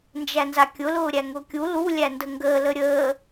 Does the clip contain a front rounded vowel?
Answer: no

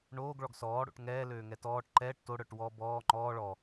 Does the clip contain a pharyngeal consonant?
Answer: no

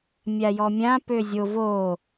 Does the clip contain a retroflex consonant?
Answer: no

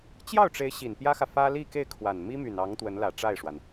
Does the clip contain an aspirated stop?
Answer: yes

